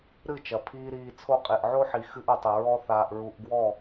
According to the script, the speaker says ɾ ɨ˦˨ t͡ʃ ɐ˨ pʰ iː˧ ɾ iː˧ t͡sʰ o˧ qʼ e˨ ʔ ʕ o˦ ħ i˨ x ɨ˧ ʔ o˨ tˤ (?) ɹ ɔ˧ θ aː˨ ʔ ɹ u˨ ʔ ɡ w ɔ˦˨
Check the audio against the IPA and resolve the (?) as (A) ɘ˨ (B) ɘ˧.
A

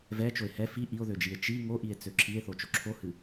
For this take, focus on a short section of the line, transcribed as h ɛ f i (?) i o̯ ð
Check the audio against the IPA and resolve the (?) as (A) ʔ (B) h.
A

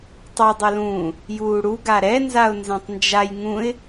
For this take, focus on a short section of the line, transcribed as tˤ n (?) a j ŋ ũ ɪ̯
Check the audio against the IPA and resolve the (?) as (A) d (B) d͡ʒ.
B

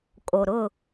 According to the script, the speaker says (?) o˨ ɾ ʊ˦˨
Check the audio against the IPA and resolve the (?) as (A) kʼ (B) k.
A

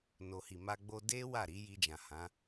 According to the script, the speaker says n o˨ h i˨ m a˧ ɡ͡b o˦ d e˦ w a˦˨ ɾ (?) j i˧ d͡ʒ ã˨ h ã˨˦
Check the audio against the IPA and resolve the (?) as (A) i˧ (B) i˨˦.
B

